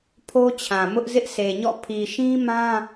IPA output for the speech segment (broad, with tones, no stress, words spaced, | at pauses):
pʰo˦t͡ɕʰã˨mʊ˦ʔ zɪ˦ʔsʰe˨ɲɔ̰˦˨ pʰi˨ʃĩ˦mã˦